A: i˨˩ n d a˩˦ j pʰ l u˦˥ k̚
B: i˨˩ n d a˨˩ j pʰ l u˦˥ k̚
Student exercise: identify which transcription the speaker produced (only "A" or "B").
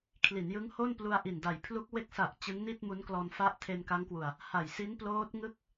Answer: B